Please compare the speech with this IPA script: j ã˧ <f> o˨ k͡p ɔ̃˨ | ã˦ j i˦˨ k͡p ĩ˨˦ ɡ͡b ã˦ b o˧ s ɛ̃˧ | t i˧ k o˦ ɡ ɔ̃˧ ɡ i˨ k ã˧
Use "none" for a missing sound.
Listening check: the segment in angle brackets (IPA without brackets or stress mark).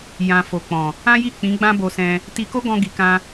f